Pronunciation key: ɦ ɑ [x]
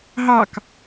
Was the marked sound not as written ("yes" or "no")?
yes